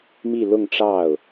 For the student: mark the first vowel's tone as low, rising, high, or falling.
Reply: falling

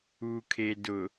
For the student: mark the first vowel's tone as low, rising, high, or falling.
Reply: low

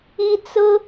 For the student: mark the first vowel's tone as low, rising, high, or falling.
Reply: high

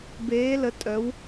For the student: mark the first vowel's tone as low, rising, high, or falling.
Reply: rising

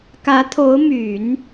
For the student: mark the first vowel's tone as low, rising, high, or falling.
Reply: rising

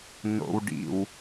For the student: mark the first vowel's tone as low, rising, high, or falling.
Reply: low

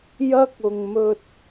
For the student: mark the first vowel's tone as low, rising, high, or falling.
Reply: high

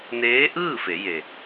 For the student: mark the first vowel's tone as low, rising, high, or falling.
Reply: rising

